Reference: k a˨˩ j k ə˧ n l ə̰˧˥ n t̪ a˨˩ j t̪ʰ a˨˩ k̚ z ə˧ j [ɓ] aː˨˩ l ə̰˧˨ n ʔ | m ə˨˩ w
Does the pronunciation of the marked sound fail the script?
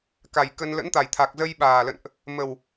no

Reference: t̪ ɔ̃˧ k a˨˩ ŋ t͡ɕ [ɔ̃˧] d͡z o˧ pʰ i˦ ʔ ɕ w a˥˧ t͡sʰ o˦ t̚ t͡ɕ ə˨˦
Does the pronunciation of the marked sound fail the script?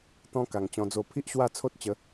no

